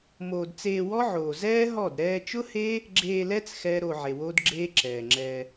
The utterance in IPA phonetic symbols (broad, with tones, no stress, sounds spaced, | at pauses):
m oː˧ d t͡s eː˧ w ɔ˦ ʕ oː˨ z ɛː˦ ɦ ɔ˦˨ d ɾ ɛː˧ t͡ʃ ʊ˦ h e˦ | ɡ͡ǁ eː˧ l ɛ˦ t͡s x ɛː˦ ɾ oː˧ ʕ e˨ w oː˦ d ɡ͡ǁ eː˦ ǁ ɛː˨ ŋ͡ǁ ɛ˧